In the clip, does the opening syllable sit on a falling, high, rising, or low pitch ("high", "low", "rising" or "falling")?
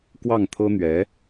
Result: falling